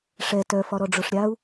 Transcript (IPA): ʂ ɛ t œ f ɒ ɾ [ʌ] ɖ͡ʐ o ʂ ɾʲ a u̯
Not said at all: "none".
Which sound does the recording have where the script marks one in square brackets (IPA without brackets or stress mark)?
ɔ